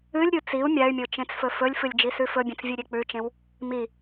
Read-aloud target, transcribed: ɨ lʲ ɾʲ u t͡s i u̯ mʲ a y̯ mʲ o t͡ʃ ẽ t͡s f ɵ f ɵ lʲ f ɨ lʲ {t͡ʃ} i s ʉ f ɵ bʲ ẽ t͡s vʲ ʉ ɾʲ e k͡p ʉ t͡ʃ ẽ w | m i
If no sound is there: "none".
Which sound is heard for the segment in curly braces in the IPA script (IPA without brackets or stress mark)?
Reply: d͡ʒ